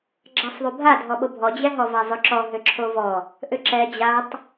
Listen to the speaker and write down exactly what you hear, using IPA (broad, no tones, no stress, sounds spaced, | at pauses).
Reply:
ɡ͡ǁ a sˤ ðˤ u bʱ a dʱ ɔ ɓ o bʱ ɔ d͡ʑ ɛ ɦ ɔ v a zˤ ʏ ǁ ɔ ɦ ʏ ǁʰ o v ɔ | ʔ ʏ ǁ ɛ d͡ʑ a tˤ